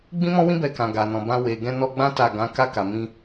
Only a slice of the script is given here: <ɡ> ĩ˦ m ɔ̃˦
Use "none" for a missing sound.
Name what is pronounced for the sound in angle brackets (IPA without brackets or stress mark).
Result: ɡ͡b